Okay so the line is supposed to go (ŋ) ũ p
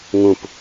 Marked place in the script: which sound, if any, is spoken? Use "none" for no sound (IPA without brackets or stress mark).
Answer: ŋ